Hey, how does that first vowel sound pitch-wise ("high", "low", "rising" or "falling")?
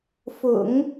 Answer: low